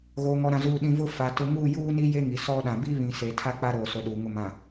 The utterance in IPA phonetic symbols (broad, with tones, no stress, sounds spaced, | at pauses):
ɣ oː˨ ŋ ɔ˨ ɾ ã˨ z uː˨ ɗ ĩ˨ v ʊ˦ f a˨ t ʊ˨ ŋ uː˦˨ j uː˦ n i˦ j e˦ ŋ i˨ s ɔ˦ ɗ ã˨ b i˦ β ĩ˨ s e˨ tʰ a˦ k͡p a˦ ɾ oː˨ s o˨ ɗ uː˨ ŋ ʊ˨ m ã˨